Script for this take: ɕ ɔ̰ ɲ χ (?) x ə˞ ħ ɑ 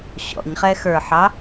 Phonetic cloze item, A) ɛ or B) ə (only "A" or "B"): A